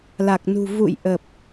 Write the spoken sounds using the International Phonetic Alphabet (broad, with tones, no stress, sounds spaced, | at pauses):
l a˨˩ k̚ n ṳ˨˩ v ṵ˧˨ j ʔ ə˨˩ p̚